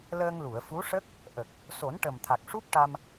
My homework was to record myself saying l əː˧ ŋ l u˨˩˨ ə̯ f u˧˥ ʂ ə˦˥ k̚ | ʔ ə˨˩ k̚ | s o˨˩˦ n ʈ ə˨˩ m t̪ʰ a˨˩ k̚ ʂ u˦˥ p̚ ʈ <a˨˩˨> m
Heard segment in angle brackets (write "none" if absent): a˧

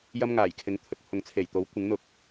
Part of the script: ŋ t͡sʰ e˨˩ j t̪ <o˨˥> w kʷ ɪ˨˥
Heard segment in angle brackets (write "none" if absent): o˨˥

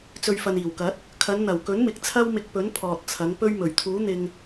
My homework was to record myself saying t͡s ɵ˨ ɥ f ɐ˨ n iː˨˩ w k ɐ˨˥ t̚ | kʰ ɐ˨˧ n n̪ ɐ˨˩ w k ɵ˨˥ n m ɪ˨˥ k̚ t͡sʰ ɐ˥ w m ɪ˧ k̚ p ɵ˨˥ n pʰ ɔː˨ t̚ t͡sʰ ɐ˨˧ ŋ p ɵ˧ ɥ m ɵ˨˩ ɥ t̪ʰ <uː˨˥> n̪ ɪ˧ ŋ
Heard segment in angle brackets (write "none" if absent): uː˨˥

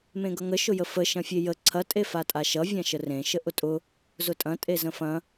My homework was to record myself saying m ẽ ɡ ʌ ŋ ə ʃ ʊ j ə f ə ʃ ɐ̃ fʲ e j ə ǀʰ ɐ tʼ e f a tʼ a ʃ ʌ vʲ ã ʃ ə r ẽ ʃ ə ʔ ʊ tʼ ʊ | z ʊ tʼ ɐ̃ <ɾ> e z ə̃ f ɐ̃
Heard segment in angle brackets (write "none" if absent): tʼ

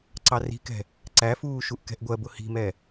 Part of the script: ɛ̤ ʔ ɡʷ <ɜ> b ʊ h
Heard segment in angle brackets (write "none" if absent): ɜ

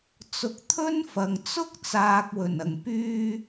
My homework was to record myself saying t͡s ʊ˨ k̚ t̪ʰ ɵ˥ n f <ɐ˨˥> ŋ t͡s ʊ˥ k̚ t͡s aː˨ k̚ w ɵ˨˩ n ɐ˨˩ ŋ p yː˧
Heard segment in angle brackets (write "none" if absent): ɐ˨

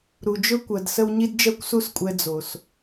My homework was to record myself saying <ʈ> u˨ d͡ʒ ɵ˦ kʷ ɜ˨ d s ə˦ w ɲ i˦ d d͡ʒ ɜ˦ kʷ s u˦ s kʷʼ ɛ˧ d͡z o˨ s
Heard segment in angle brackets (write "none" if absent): ɾ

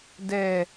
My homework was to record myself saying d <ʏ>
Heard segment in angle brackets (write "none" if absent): ɛ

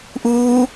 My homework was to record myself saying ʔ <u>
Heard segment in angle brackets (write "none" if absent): uː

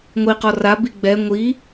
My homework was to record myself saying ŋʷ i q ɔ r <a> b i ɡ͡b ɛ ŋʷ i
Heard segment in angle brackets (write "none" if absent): a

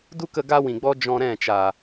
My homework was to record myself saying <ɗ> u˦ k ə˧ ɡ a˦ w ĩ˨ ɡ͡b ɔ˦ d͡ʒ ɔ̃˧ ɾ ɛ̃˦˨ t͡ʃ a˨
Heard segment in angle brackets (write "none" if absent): d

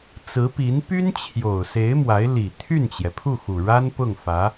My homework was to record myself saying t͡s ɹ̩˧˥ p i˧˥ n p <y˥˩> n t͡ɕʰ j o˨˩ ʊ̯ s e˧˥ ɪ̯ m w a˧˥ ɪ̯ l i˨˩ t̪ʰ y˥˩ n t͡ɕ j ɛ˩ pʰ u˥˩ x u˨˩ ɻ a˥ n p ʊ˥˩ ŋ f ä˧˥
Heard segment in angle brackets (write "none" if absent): y˥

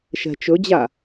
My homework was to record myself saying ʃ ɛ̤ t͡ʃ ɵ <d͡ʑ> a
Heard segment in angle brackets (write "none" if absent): d͡ʑ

